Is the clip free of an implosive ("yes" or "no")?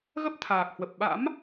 no